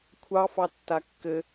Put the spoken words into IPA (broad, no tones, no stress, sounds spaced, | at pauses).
kʷʰ ɑ f ɑ tː a kː ɘ